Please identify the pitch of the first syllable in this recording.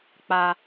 high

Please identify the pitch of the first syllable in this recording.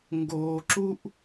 high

